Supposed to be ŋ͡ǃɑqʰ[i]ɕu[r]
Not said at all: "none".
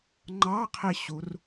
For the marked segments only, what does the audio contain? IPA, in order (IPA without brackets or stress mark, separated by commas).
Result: i, r